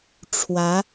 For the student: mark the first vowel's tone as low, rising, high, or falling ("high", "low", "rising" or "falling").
rising